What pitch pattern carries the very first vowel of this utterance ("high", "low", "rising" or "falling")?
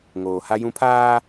low